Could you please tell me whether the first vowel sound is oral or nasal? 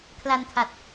oral